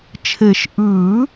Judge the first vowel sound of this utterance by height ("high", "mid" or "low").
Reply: mid